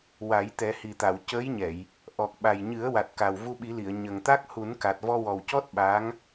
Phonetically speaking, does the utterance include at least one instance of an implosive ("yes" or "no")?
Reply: yes